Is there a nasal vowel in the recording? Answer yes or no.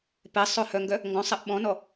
yes